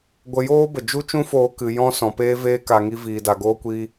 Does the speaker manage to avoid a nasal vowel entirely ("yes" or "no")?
no